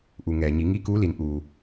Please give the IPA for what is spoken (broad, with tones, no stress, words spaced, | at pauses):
ʔu˩ŋɛː˩ɲi˩˧ ŋi˧˥kuː˧˥li˩˧n ʔuː˩